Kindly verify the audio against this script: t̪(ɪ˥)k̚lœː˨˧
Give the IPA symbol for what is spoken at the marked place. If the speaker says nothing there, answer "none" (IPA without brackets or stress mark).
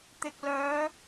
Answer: ɪ˨